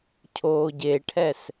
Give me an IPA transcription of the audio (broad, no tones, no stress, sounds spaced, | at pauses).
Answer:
cʰ oː ɟ e ʈʰ ɛ s